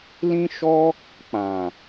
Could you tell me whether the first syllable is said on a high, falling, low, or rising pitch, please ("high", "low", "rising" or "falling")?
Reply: high